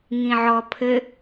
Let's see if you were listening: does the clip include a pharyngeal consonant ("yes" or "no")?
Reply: yes